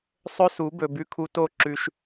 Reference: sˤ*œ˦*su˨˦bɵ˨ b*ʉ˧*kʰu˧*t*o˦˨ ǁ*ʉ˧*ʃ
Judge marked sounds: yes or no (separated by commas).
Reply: no, yes, yes, yes